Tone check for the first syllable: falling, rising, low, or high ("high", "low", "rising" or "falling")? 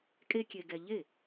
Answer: high